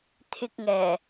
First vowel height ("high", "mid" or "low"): high